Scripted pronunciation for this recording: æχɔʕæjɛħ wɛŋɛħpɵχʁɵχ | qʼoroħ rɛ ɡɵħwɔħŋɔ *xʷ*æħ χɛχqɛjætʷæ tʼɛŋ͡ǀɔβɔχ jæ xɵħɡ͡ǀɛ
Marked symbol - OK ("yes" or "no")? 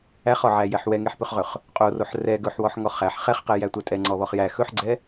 no